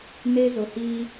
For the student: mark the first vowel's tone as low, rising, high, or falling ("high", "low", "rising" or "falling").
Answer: high